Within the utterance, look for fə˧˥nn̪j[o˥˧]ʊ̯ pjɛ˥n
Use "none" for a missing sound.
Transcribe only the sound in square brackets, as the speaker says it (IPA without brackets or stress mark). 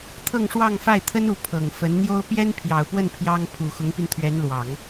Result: o˥